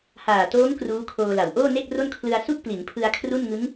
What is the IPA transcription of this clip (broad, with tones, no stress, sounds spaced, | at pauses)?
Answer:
h aː˨˩ t oː˦˥ ŋ k r uː˦˥ kʰ oː˧ l a˨˩ w ʔ oː˥˩ n e˥˩ k̚ r o˥˩ n kʰ l ɯ˧ a̯ s u˥˩ k̚ p l i˩˦ n pʰ ɯ˧ a̯ kʰ r u˥˩ n ŋ ɯ˦˥ ŋ